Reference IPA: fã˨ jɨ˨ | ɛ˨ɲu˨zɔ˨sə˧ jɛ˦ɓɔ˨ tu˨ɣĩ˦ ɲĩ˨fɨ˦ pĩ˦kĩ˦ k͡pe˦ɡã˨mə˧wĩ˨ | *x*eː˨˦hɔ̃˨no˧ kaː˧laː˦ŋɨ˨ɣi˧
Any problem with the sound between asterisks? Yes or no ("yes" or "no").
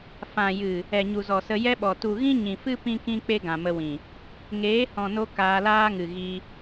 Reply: yes